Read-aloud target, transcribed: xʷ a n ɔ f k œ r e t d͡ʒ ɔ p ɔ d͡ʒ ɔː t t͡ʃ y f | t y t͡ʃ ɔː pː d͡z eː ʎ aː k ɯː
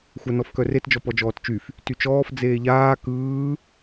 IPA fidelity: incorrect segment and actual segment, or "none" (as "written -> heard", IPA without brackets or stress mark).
pː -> f